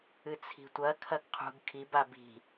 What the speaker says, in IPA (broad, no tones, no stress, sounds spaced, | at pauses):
ɨ t͡sʰ i̤ tʷ ɐ kʰ ɐ ɡ qʰ ṳ ɡ kʰ i b a b i̤